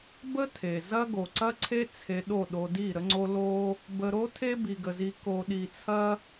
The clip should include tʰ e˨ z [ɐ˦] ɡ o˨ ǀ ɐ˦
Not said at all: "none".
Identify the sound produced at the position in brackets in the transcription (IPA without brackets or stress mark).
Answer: ɐ˦